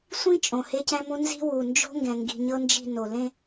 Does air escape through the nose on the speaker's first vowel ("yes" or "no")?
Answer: yes